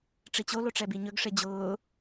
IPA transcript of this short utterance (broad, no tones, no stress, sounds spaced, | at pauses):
ʈ͡ʂ i t͡ɕ o l o ʈ͡ʂ ɛ b i ɲ ɵ ɡ ʂ e d͡ʑ ʊː